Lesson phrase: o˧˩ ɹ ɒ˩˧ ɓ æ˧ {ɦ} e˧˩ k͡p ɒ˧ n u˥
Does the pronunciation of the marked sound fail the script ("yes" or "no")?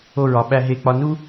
no